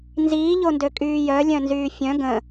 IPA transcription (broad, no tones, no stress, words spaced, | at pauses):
nziːʎondø kʼyːjœ lʲœ̃nzyːfʲœ̃ ɡə̃